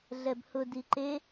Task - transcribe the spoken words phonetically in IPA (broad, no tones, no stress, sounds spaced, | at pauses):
ɮ ɛ b h ʊ d i ǃ e